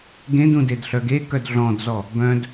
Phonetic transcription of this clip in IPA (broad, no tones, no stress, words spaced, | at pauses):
ɡẽdũdedɬœ ɡekœd ɮɔ̃dzɔ | bœ̃d